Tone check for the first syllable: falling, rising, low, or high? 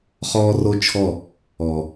high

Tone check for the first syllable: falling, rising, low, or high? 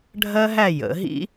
high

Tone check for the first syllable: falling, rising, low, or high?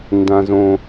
high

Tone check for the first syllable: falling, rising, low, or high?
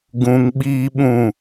low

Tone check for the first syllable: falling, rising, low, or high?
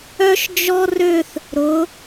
high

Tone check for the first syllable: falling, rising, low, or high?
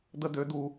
high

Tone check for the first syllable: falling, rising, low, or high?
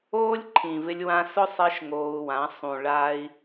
high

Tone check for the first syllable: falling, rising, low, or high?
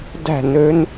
falling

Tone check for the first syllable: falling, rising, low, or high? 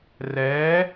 rising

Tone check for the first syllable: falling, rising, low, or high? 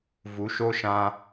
rising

